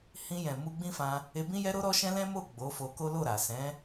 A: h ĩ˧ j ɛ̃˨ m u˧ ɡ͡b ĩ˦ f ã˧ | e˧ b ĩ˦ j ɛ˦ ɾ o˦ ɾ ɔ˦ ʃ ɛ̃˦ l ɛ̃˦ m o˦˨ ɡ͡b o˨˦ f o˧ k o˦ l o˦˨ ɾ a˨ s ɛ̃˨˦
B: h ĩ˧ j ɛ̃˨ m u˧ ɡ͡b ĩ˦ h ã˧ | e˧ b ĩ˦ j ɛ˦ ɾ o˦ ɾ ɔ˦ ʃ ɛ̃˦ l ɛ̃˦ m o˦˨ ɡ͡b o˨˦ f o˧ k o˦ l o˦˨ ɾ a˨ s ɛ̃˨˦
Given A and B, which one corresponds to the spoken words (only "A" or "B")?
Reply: A